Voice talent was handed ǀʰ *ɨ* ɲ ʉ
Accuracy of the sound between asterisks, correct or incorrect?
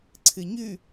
correct